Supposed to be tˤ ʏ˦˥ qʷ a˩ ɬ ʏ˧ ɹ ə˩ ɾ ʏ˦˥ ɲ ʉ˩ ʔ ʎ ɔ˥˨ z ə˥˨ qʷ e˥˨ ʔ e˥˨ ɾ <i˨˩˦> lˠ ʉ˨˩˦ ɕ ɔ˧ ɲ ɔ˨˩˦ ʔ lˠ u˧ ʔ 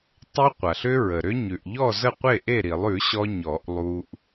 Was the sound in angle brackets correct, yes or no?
yes